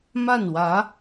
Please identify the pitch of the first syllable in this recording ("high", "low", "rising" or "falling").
falling